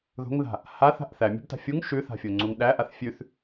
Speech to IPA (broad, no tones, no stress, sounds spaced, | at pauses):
ð o̤ ŋ ð a̤ | h a θ a̤ ʔ θ æ mʲ o̤ b t a̤ fʲ u ŋ ʃ ʉ θ a̤ fʲ o ŋ͡ǀ u ŋ ɗ æ ʔ a θ fʲ ʉ θ